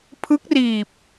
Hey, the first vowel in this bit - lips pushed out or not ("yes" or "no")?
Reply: no